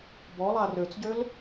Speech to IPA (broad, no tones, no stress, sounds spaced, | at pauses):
b ɔ lˠ a r ø t͡s ɟ ø l